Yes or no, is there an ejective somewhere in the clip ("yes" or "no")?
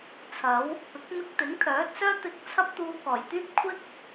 no